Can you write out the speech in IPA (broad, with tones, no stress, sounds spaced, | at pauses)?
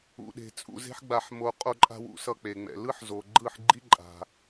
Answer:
ṵ˨ ɗ e̤˨ t͡sʼ ṵ˦˨ z e̤˦ ħ ɡ͡b a˧ ħ m o˧ qʼ o˧ ǃʼ a̤˧ w ṵ˧ s ʌ˧ k͡p e˨ ŋ͡m ɛ̰˨ l ɯ˦ ħ z o˨ ɡ͡ǃ ɯ˦˨ ħ ɡ͡ǃ i˦ ǃʼ a̤˧